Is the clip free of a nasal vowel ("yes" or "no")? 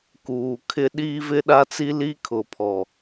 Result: yes